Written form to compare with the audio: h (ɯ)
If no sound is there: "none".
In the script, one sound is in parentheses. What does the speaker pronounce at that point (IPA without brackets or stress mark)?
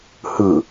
ɯ